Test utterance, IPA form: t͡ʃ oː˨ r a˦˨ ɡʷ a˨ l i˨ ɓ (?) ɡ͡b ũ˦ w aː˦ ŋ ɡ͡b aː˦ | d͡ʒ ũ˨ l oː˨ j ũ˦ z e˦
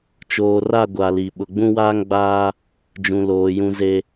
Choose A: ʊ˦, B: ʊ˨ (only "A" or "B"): B